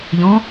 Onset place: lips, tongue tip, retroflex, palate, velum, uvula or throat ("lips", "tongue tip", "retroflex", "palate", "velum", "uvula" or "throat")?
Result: palate